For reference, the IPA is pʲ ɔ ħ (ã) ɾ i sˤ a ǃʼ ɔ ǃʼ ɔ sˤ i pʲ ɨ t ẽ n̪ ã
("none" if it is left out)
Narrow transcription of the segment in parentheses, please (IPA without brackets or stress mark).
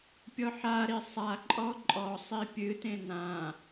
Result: a